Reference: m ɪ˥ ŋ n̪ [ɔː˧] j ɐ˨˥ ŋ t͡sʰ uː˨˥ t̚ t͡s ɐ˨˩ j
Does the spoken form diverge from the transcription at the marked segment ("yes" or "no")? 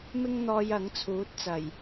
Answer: no